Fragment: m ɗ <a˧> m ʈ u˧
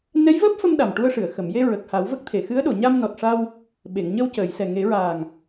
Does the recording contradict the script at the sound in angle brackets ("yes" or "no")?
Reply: yes